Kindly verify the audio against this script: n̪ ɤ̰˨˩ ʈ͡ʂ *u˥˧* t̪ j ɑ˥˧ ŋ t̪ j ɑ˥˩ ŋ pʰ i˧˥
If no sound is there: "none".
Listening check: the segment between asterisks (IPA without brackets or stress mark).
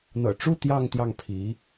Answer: u˥˧